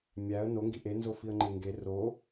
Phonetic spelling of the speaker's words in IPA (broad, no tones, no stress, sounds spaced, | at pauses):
mʲ æ ə̯ n o ŋ ɡ i ʔ e n z o f i ə̯ ŋ͡ǃ e ŋ ɡ e r o